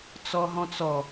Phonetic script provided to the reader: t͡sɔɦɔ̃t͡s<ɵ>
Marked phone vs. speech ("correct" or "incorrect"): incorrect